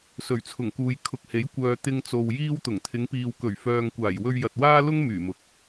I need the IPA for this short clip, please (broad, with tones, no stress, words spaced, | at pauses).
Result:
sɵ˨˩ɥt͡sʰʊ˨˩ŋkuː˨j kʰʊ˨k̚he˨˥j kʷœː˨ t̪ɪ˧ŋt͡so˨w jiː˥wt̪ʊ˨˩ŋ t̪ʰɪ˨˧ŋpiː˨wkɵ˨˩ɥ fœː˧ŋkʷaː˨˩j wɵ˧ɥjɐ˨t̚waː˥lʊ˥ŋ myː˨˩mʊ˨k̚